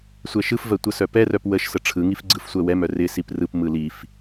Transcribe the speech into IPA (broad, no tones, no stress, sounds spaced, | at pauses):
sʷ ɛ ʃ ɯ f v ɜ tʷ ə s œ p ɛ r œ p w ə ʃ s ə ʈ͡ʂʰ ɯ ŋ i f ɡ͡ǀ ɯ f sʷ ɜ w ɛ m œ r ɪ s i p r ɯ p m ɯ l i f